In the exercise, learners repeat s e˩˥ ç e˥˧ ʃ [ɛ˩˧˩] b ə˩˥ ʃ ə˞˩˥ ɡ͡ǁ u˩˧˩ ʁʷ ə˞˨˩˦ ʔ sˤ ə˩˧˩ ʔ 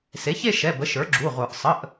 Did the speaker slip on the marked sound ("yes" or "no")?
no